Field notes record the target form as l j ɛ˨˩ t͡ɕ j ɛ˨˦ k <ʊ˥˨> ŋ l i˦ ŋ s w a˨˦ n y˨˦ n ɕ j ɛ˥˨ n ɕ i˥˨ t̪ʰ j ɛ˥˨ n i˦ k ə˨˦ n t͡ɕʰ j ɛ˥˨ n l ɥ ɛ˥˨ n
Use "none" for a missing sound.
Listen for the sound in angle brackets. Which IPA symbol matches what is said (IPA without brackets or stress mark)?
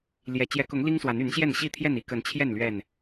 ʊ˨˦